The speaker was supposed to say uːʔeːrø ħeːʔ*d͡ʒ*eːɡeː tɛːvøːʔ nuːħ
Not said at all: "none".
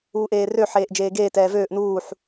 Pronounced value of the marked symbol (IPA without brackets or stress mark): d͡ʒ